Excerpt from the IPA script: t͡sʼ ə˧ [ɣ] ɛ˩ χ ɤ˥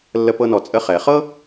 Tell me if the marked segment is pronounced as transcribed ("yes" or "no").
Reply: no